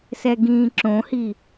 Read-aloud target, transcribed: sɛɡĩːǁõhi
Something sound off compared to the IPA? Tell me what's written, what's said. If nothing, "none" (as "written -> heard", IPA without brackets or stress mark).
none